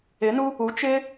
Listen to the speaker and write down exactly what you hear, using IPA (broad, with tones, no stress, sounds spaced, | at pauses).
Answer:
ɪ˧˥ n u˥ | u˧˥ t͡ʃ ɪ˥